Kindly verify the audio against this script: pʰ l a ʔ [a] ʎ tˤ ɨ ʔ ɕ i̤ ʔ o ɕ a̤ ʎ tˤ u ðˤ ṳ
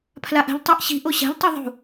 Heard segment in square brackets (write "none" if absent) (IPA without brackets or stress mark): a̤